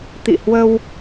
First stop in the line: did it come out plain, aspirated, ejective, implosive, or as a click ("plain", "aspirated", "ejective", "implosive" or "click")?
plain